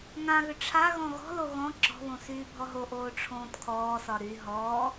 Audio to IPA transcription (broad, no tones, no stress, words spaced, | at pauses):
ŋãɣʏ ʈ͡ʂʰa ɣɔ̃ɣɔ̤lo ɣɔ̃ ǁɔ̤βõ syːbʱɔɦoʔoː ʈ͡ʂʰõːtkʰɔːsɒ ɾy ɦɔː